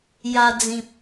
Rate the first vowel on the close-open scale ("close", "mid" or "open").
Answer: open